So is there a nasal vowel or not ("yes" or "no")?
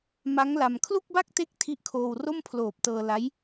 no